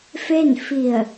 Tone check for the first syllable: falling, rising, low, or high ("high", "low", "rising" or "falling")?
falling